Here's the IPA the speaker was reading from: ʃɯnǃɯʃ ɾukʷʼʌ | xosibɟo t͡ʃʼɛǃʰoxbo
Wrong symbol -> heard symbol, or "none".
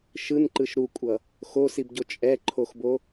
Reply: none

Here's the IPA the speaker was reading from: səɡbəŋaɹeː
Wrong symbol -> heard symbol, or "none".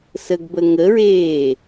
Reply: a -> ə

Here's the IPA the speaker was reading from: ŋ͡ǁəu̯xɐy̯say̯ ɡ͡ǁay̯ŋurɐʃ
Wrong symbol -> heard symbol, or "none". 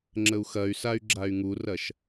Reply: none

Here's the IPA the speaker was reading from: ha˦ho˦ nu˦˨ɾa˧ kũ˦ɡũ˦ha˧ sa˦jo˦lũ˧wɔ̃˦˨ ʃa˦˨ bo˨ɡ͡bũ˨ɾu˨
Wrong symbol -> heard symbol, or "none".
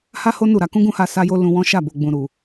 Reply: ɔ̃˦˨ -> ɔ̃˦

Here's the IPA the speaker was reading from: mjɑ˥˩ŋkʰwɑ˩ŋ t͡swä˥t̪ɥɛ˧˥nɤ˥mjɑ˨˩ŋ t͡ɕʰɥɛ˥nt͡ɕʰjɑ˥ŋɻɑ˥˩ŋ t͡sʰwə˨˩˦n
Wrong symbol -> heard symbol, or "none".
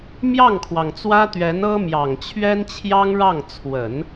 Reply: none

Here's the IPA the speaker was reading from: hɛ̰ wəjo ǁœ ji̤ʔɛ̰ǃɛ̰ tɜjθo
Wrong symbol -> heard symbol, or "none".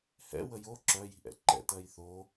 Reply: none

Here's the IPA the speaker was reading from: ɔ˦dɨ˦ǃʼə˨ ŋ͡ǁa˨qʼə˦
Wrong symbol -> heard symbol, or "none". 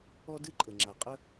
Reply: none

